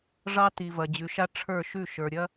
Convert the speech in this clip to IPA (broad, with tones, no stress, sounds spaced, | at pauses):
ʐ ɑ˦ t i˨ v ɐ˨ d͡ʑ ʉ˨ ʃ a˦ ʈ͡ʂʰ ə˞˦˨ ʃ ʉ˦˨ ʃ ə˞˨ ɾʲ ɐ˦